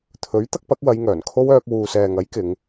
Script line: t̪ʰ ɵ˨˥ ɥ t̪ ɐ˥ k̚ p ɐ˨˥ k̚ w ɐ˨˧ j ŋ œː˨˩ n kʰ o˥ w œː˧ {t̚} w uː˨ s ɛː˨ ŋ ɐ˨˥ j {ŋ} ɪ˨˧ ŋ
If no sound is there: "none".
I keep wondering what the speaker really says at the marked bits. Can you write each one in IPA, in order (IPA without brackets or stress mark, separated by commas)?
k̚, k